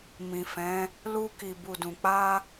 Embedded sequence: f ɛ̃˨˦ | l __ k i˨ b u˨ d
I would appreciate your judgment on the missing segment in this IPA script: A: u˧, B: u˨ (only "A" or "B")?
A